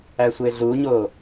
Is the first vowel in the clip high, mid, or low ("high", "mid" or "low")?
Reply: low